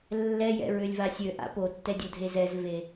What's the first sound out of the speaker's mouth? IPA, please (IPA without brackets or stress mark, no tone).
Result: lː